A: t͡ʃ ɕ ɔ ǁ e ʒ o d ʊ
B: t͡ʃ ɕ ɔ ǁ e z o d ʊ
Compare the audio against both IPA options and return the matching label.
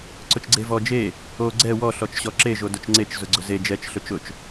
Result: A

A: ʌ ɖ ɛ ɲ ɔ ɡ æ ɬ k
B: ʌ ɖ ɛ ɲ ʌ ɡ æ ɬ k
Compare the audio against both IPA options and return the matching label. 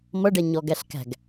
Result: A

